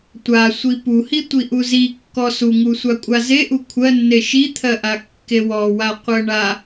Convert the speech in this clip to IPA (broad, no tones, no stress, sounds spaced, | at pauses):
tʷ a sʷ i p u h i tʷ i ʔ u z i kː ɔ s u ŋ u sʷ a kʷʼ a z e ʔ u kʷʰ ɜ nː e ʃ i t̪ʰ ɜ ʔ a kː e w ɔ w a qʷ ɜ ɳ a